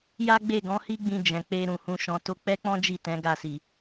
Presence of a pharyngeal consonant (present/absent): absent